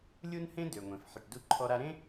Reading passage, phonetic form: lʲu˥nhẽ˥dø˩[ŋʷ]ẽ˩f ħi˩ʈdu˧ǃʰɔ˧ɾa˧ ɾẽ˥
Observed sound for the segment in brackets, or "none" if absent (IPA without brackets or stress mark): ŋʷ